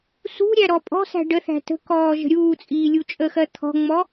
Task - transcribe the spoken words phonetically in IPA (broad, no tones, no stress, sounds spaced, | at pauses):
s ṳ ɾʲ æ ɾ ɔ pʼ ɔ̤ s æ̤ ɖ ə θ æ̤ t ə̤ k ɔː ʒ ə̤ ɾʲ uː t͡sʼ iː lʲ u t͡ʃʼ ə x ɜ t̪ʰ ɔ̤ ŋ͡m ɔ